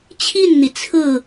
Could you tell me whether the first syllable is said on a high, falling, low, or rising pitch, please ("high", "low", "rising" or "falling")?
falling